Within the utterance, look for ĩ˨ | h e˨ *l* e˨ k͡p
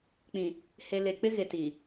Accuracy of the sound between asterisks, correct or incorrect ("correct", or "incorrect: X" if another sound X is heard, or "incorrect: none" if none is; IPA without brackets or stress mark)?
correct